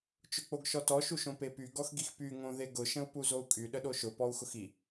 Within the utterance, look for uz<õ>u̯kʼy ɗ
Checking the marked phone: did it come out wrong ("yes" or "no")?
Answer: yes